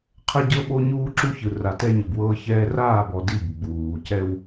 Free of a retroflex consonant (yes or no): yes